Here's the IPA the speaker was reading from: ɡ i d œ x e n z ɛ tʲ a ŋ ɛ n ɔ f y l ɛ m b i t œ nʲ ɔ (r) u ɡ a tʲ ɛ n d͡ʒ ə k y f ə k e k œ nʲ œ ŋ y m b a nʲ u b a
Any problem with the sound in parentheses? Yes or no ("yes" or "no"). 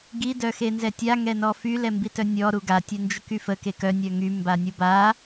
yes